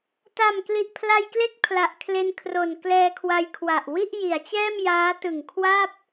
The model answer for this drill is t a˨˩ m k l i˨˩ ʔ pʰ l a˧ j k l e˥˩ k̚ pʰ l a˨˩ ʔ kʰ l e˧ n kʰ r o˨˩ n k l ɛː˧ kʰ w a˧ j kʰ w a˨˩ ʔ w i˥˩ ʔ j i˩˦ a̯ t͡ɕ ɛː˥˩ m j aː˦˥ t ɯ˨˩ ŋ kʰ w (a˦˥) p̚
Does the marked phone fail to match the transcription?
yes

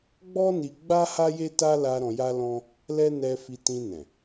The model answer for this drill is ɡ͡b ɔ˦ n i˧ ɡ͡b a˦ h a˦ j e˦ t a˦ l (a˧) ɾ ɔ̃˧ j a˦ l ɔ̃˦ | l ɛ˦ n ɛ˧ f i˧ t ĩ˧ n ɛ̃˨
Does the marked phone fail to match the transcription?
no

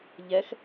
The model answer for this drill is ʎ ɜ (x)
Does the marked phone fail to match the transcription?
no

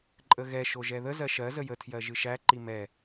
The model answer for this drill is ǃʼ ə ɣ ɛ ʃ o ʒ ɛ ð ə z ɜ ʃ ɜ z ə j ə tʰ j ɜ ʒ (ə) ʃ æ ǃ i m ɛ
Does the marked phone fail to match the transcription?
yes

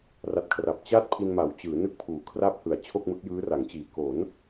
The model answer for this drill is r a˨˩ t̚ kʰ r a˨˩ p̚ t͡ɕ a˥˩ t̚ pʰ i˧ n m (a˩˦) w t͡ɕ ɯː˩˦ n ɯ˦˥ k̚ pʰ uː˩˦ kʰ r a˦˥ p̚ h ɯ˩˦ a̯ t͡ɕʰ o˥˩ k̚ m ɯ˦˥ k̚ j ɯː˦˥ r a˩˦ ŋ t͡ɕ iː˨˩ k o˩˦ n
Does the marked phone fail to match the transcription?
no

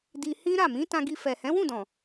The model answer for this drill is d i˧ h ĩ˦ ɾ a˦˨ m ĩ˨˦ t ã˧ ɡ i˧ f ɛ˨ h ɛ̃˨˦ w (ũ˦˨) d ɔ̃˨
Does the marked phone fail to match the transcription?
no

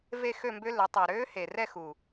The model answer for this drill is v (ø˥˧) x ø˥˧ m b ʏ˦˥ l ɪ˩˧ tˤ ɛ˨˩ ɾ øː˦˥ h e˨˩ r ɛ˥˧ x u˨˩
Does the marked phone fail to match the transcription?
yes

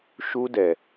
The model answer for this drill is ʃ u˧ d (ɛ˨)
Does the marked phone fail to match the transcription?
no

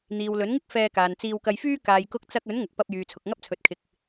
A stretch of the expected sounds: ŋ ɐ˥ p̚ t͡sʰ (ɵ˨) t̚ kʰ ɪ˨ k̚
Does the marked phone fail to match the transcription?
no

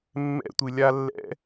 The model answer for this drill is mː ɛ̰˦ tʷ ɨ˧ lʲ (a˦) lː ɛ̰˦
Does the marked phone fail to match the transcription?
no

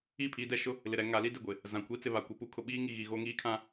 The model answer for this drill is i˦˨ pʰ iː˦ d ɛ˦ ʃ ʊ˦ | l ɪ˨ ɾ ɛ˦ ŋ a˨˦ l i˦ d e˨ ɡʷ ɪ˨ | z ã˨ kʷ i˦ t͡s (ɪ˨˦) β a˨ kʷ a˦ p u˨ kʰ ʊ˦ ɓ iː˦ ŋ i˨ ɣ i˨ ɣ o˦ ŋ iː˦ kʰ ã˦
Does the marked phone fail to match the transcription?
yes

